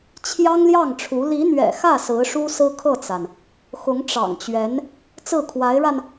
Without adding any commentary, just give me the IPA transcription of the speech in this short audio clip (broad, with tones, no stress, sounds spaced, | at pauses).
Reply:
t͡ɕʰ j ɑ˥ ŋ l j ɑ˥˩ ŋ ʈ͡ʂʰ u˧˥ l i˧˥ n̪ ɥ ɛ̰˨˩ x ä˥˩ s ɹ̩˧˥ ʂ u˥ s ɹ̩˥ kʰ ɤ˥˩ t͡s a˩ n | x ʊ˧˥ ŋ ʈ͡ʂ ɑ̰˨˩ ŋ t͡ɕ ɥ ɛ˧˥ n | t͡s ɹ̩˥˩ kʰ w a˧˥ ɪ̯ ɻ a˧ n